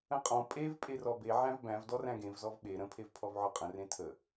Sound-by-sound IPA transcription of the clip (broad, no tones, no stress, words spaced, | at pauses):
ə̃qʼɔ̃ pʼev pʼerɔbe ʕæ̃vbæ̃v dɔræ̃ɡẽv zɔvɓe ɾə̃ pʰevpʰɔvʕɔqʼə̃ rẽtʰə